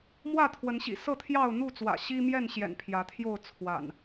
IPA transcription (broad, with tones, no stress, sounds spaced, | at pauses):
m w ä˥˨ t̪ʰ w ə˨˦ n ɕ ḭ˨˩ s ɤ˥˨ t̪ʰ j ɑ˥˨ ʊ̯ n̪ u˥˨ t͡s w ä̰˨˩ ɕ i˦ m j ɛ˥˨ n ɕ j ɛ̰˨˩ n pʰ j ä˨˦ t̪ʰ j o˥˨ ʊ̯ t͡sʰ w a̰˨˩ n